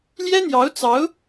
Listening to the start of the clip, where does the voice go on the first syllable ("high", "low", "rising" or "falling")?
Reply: high